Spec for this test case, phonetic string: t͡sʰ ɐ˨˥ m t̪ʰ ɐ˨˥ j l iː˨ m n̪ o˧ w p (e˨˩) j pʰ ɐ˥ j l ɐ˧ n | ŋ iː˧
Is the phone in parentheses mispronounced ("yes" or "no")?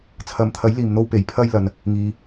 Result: yes